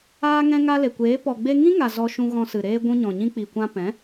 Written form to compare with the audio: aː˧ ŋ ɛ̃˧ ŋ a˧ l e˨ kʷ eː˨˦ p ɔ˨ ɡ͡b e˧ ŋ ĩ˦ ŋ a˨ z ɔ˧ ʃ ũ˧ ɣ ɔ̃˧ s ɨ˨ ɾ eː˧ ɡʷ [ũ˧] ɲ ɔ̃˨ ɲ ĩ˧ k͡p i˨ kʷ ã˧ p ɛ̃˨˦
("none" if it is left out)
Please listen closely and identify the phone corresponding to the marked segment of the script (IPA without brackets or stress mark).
ũ˧